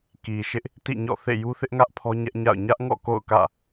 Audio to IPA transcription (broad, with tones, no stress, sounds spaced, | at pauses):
k i˨ ʃ ɪ˦ ʔ | t ḭ˦˨ ɲ ɔ̰˦˨ θ ḛ˦˨ j u˦ θ ɪ˦ ʔ ŋ ä˦ ʔ pʰ ɔ˦ ɲ ɛ˦ ʔ ɲ a̰˦˨ ʊ̯ ɲ ä˦ ʔ ŋ ɔ̰˦˨ k o̰˦˨ ʊ̯ k ä̰˦˨